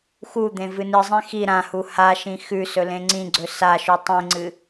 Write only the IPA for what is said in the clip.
xud̪ẽ vɨnɨzˤẽ xi ɾãhu haʃĩ xʉ sɵlẽŋ͡ǀĩɡ͡ǀɵ saʃu tˤĩŋ͡ǀɨ

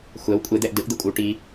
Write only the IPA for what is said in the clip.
xʷɛw kʷʼed̪ɛʔ dɯʔd̪ɯkʷʼɯw ʈi

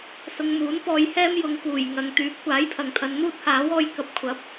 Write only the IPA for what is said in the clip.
sʊ˧ŋmuː˨˥npɔː˧j hɛː˥mjʊ˨˧ŋkuː˨˩j ŋɐ˨ŋt̪yː˨˥p̚ kʷaː˨˥jpʰɐ˨ŋt̪ʰɐ˨˧n n̪uː˥t̚haː˨˥wɔː˧j kɐ˧p̚kʷʰɐ˨˥p̚

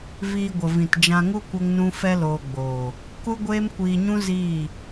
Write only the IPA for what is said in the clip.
viː˧ɡʷə˨vĩ˨t d͡ʒã˧ŋu˦ kʷə˦ŋnũ˦ fɛ˦loː˧ɡ͡boː˨ | ku˦ɡʷeː˦mkʷiː˧ɲũ˦ ziː˦˨

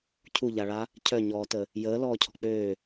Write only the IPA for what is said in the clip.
cʰuʎaɭa | cʰœɲɔːtə | jəːlɔːcʰɔ̤ k͡pøː

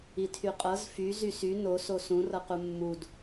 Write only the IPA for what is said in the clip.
itʰyqʼɤz fy zysy noso sũ rɤqumːud

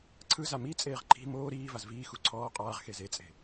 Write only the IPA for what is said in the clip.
ǀʰɯza mit͡sʼeːʁ ǃʰi̤ moː ɾiː vazviːxu ǀʰɔː qʼaːʁxez et͡sʼe̤

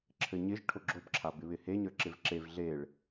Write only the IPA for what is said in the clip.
ǁʰɘɲɪʒ ʈʰoɡ͡ǁobǁʰa bɪβɪheɲə˞ ǁɪvǁev ɮeɭ

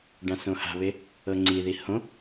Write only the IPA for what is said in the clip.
ɖãsõha̤βe | ɤŋ͡ǀiði hõ

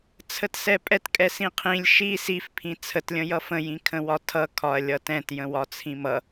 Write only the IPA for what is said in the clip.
t͡sʰətsɛpʼɛt kʼɛsĩqʰĩlʲ ʃi sifpʰĩ t͡sʰətlʲə̃jʌ fə̃jĩkʰə̃wɒ tʰʌ kʰɒɐ̯lʲʌtɛ̃t jə̃wɒt͡sʰĩmʌ

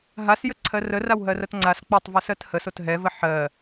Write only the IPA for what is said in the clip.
ɦasjəǀʰɜ rərawɦɜrɐt ŋ͡ǀas k͡pɛtˤvosɜt həsot ɦɛvə ħɜ

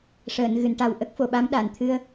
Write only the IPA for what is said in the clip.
ʂəː˨˩˨nɣɨ˨˩˨nʈa˨˩w ʔə˦˥k̚fo˨˩˨ɓa˧˥m ɗa˨˩˨nt̪ʰɨ˧ə̯

